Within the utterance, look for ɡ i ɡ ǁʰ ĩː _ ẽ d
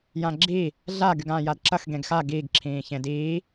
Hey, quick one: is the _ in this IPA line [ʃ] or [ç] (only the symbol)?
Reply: ç